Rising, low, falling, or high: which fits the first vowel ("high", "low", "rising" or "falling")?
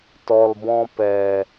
low